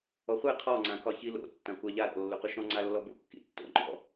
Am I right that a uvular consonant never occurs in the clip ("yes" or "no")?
no